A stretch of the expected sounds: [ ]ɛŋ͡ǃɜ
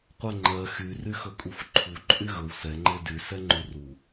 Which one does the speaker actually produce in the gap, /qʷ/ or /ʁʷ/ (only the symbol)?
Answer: qʷ